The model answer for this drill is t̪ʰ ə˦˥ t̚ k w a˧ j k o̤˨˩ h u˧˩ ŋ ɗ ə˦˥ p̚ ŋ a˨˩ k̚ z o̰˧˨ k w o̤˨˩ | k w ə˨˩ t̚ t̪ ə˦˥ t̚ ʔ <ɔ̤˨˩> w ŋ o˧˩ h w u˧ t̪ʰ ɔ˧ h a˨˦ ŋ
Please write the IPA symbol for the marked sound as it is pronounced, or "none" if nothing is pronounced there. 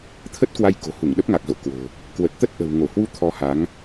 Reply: ə̤˨˩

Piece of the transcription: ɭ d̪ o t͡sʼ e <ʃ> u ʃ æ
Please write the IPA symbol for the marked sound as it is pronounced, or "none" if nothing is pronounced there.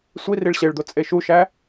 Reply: ʃ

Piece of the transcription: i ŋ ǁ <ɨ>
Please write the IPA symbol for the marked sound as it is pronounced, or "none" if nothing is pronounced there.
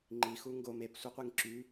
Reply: y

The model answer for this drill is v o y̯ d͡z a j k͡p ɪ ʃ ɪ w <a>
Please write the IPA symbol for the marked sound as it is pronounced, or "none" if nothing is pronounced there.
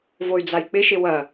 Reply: ɐ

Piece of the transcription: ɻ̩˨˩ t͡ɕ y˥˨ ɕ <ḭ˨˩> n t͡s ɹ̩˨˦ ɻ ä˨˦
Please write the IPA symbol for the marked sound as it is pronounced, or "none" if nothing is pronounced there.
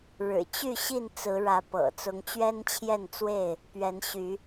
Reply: i˥˨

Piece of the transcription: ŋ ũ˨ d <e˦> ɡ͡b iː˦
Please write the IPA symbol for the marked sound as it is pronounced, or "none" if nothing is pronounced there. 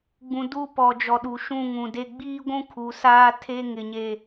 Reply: e˦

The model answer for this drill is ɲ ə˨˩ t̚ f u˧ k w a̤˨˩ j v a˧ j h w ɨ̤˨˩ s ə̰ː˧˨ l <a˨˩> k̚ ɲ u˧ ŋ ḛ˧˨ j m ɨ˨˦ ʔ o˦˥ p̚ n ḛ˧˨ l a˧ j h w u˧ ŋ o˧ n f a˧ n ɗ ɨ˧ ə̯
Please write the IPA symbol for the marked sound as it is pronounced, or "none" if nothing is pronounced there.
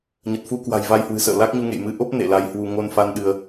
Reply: a˦˥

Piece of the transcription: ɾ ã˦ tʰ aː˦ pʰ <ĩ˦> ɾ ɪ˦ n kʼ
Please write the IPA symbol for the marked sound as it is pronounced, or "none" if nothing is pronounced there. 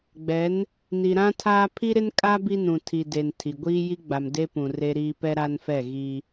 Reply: i˦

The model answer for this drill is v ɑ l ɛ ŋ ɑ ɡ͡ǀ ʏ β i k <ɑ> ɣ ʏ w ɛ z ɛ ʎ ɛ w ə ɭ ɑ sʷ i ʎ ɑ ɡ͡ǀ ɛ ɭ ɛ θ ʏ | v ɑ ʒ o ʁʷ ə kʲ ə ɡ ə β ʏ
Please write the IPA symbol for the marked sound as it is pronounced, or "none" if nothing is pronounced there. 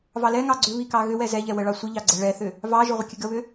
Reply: ɑ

